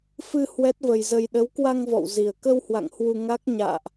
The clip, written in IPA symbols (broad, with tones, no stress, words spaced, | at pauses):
fɨ˧ hwɛ˦˥t̚və˧jzə˧j ɗə˨˦wkwa˧ŋvɔ̰˧˨wzi˨˩ə̯ kə˧whwa̰˧˨ŋ hwu˧ŋa˦˥k̚ ɲa̰ː˧˨ʔ